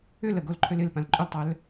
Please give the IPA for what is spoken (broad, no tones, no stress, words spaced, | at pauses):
ʏlə ɡolǃʰølɪlpãl ǃʼʏltˤœl